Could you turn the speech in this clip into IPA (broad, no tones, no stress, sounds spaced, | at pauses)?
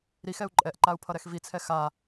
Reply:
ɾ i x ɛ u̯ ǃʼ ɛ ʔ ǃ a u̯ pʰ ʌ ɾ ɛ x v i t͡sʰ ɛ x a